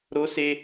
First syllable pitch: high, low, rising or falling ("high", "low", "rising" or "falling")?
high